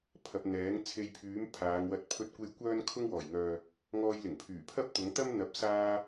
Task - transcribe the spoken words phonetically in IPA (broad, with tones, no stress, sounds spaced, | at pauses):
pʰ ɐ˧ p̚ n̪ ɛː˨˥ ŋ t͡sʰ e˧ j pʰ yː˨˥ m pʰ aː˨˧ ŋ w ɐ˧ t̚ pʰ ɵ˧ t̚ kʷ e˧ j kʷ œː˥ n kʰ ʊ˥ ŋ w ɔː˨˩ j ŋ œː˨ | ŋ ɔː˧ j l ɪ˨˩ ŋ pʰ yː˨˩ pʰ ɐ˥ p̚ t̪ ʊ˨˥ ŋ t̪ ɐ˥ m n̪ ɐ˨˥ p̚ s aː˧